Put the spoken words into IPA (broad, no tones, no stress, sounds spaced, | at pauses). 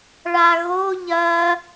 ɭ a ɣ o ʎ ɐ